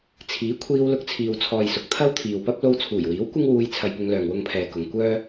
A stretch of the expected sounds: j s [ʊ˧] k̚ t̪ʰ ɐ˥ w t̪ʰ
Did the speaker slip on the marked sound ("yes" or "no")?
yes